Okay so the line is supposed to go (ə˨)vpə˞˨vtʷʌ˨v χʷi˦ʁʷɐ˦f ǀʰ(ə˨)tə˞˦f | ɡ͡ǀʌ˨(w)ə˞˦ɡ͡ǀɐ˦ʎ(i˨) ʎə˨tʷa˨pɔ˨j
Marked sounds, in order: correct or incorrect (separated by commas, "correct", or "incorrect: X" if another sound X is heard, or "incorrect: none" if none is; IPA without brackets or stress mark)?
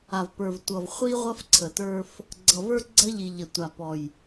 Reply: incorrect: a˨, correct, incorrect: v, correct